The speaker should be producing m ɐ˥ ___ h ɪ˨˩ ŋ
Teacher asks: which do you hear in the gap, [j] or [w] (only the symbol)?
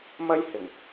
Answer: j